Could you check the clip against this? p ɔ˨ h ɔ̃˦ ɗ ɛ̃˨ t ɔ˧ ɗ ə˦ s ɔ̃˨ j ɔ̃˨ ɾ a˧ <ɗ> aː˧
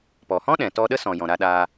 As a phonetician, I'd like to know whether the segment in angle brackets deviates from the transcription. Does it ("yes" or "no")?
no